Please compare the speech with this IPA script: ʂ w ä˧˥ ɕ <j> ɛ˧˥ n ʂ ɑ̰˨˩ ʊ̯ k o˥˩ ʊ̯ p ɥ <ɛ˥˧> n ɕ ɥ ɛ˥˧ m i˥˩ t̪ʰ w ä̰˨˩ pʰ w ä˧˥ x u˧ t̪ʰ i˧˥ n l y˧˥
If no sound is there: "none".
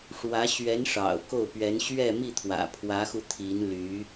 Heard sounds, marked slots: ɥ, ɛ˧˥

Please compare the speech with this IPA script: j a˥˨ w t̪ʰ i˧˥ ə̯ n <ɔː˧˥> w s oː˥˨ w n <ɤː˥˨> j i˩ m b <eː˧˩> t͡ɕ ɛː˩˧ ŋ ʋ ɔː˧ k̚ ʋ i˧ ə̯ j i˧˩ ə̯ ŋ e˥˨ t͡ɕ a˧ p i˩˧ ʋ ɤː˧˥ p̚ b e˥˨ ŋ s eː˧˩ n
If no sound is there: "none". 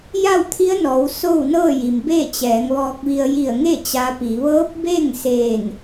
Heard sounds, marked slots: ɔː˩˧, ɤː˥˨, eː˥˨

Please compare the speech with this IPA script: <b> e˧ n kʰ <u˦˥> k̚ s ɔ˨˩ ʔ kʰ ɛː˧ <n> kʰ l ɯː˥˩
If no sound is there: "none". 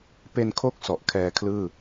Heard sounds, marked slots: p, o˦˥, none

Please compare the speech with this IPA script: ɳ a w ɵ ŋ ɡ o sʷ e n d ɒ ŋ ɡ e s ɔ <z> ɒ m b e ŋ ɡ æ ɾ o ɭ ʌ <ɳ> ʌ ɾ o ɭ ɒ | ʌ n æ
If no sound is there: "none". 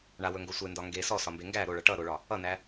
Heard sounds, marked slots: s, ʈ

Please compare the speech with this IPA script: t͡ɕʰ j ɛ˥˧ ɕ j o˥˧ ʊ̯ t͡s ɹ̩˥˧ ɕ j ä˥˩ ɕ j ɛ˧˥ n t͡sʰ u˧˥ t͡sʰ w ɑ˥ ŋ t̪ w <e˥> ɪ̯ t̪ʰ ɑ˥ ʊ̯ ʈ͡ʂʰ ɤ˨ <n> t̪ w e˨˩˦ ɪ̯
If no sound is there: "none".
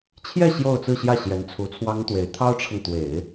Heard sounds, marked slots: e˧˥, ŋ

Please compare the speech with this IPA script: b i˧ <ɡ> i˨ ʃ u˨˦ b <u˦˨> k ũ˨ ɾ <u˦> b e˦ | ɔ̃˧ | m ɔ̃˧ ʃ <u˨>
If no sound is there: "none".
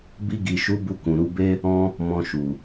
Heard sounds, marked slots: ɡ, u˧, u˧, u˨

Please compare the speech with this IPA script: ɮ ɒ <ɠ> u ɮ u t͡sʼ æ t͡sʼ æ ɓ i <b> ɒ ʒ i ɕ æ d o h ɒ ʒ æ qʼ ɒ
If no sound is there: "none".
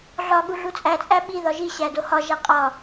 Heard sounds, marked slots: ɠ, ð

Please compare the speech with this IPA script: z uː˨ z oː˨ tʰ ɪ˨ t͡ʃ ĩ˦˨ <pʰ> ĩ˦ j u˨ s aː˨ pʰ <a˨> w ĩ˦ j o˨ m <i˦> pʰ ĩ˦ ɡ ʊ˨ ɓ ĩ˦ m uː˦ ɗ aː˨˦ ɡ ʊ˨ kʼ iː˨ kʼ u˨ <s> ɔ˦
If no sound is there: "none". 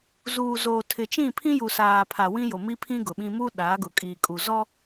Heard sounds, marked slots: pʰ, a˨, i˦, z

